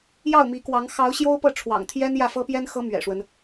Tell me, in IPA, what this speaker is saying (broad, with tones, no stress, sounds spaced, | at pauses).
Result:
j ɑ˥˩ ʊ̯ m i˧˥ k w ɑ˧˥ ŋ x ɑ˧˥ ʊ̯ ɕ j o˥ ʊ̯ p ɤ˥˩ ʈ͡ʂʰ w ɑ̰˨˩ ŋ t̪ʰ j ɛ˥ n j ä˥˩ f ɤ˥ p j ɛ˥ n x ɤ˧˥ m ɥ ɛ̰˨˩ ʂ w ə˦ n